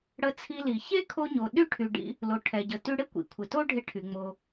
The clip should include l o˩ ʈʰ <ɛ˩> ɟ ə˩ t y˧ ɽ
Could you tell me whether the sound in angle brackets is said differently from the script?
no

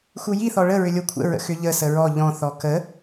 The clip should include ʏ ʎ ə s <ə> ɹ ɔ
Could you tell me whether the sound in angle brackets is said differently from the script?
no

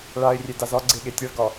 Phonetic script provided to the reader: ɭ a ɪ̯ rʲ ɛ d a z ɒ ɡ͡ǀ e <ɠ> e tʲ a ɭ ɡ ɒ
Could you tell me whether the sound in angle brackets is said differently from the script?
no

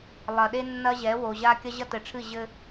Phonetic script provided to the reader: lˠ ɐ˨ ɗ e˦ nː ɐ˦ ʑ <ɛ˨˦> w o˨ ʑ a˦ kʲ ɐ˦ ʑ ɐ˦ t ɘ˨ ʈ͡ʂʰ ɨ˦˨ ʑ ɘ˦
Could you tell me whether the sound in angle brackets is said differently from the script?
no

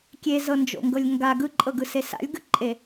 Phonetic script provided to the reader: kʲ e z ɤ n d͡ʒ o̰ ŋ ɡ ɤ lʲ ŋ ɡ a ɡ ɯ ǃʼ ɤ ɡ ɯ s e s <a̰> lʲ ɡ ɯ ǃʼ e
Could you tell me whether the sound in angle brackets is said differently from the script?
no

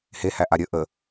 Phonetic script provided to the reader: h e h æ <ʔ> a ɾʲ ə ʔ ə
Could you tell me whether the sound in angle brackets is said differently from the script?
no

